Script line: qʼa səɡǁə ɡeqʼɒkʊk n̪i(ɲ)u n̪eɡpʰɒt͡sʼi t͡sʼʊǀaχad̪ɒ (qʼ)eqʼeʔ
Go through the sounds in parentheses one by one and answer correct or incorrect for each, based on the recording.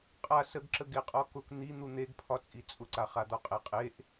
incorrect, correct

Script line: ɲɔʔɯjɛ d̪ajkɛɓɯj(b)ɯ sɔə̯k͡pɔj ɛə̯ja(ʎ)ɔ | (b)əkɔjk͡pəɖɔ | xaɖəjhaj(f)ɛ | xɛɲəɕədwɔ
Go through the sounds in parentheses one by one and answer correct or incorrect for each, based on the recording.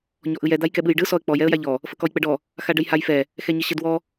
incorrect, correct, incorrect, correct

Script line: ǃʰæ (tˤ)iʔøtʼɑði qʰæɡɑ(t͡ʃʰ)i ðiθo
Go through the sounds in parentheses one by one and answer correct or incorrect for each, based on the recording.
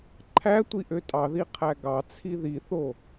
incorrect, incorrect

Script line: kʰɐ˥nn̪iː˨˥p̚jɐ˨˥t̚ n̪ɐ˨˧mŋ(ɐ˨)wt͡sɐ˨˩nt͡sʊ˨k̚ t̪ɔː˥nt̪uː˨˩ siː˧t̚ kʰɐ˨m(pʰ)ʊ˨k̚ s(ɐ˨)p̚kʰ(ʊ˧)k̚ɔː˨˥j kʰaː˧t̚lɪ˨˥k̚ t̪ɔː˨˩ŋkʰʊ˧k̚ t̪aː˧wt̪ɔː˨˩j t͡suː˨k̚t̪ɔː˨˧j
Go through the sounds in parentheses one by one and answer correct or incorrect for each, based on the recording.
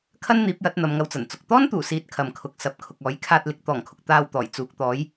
incorrect, incorrect, correct, incorrect

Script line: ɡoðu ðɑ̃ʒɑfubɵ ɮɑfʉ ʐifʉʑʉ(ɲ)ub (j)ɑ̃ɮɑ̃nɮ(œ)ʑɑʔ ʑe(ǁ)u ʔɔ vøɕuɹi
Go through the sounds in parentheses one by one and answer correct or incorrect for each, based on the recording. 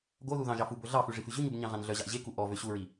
correct, incorrect, correct, incorrect

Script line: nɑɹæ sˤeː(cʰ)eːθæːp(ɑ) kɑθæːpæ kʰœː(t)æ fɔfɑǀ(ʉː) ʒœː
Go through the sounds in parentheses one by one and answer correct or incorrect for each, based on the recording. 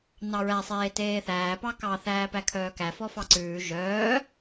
incorrect, correct, incorrect, correct

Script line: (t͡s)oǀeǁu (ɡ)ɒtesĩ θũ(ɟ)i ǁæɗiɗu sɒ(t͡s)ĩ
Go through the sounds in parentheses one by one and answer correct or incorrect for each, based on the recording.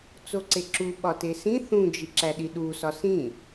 correct, incorrect, incorrect, incorrect

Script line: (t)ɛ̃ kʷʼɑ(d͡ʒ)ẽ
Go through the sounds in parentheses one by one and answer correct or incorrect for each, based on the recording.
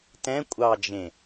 correct, correct

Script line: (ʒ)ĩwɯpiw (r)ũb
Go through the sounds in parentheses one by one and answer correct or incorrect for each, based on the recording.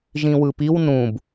correct, incorrect

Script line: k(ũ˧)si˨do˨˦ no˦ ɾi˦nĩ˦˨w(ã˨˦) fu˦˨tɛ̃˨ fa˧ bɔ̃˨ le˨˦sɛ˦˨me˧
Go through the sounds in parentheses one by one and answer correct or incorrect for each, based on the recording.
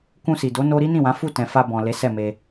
correct, correct

